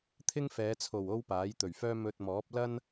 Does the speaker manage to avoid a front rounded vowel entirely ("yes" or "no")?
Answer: no